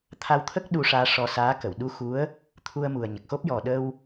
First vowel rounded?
no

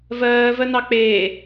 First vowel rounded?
no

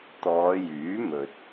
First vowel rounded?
yes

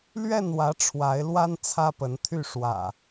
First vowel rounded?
no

